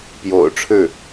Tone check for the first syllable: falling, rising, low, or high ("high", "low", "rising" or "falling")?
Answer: low